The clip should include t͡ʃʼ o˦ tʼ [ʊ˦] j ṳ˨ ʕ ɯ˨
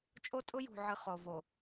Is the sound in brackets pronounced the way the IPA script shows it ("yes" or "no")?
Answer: yes